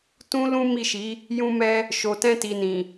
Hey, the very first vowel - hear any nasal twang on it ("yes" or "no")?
yes